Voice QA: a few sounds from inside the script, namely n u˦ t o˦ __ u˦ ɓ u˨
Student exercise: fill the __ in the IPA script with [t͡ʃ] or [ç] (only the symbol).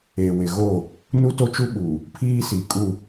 t͡ʃ